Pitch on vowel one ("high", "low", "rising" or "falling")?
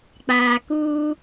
low